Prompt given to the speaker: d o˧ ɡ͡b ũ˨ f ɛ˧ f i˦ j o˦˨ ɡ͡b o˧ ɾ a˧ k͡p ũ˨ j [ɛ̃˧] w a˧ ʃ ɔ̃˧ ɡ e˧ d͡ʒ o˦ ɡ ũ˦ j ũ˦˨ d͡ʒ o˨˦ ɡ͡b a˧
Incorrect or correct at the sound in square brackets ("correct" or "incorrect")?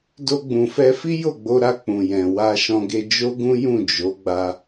incorrect